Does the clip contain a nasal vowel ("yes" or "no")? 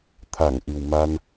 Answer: no